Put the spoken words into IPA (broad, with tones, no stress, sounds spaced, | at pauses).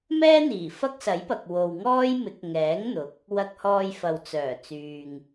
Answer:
m ɛː˥ n̪ iː˨˩ f ɐ˥ k̚ s ɐ˨˥ j p ɐ˨ k̚ w o˨ w ŋ ɔː˥ j m ɪ˨˥ k̚ ŋ ɛː˨˥ ŋ n̪ ʊ˨˥ k̚ | w ɐ˧ k̚ h ɔː˧ j f ɐ˨ w t͡s œː˨˩ t͡s yː˨ ŋ